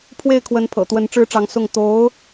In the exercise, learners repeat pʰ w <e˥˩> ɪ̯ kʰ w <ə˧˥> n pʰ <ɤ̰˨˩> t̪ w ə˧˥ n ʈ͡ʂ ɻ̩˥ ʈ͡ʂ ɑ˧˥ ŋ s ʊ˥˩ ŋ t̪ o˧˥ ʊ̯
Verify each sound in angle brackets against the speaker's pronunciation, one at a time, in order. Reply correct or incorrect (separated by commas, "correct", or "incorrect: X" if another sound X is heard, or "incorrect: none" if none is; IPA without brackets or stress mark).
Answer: correct, correct, correct